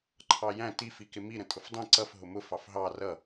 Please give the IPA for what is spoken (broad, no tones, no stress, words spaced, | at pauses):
ǃʰɑjæ̃ tif ikɪmi ɾə̃tʼʊfdˤĩ ǀʌf ɦʊmʊ fɑfɦɑ rʌ